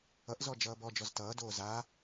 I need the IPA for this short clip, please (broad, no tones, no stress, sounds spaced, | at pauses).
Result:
ʌ ʔ z ɔ d͡ʒ ʌː b ɔ d͡ʒ ɔ z t ʌː d oː z a